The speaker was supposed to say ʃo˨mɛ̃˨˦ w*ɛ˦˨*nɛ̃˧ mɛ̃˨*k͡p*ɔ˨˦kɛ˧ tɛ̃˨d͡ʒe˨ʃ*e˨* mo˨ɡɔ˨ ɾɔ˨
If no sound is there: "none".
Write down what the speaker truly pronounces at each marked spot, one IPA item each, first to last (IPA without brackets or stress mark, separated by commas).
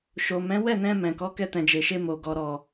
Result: ɛ˦˨, k, e˧